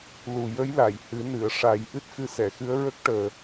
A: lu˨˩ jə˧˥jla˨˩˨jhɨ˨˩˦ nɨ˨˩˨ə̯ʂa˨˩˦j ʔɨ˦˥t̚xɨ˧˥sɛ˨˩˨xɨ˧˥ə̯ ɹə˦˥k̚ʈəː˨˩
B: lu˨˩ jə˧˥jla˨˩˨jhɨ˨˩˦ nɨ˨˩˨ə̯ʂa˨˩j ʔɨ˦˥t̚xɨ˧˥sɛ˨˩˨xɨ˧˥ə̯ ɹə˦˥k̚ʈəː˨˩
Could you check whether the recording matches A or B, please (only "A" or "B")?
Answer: A